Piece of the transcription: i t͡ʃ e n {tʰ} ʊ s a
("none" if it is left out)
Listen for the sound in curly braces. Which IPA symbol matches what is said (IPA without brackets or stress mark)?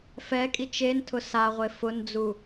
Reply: tʰ